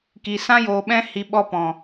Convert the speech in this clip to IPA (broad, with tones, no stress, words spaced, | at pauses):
ki˨sã˦ joː˨ɓɛ̃˧hi˨ ɓɔ˧pɔ̃˨